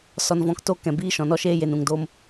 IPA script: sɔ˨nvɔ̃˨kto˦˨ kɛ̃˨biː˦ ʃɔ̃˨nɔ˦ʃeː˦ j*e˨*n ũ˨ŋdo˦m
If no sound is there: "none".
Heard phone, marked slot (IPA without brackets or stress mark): e˨